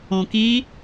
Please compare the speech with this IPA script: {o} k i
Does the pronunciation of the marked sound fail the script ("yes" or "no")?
yes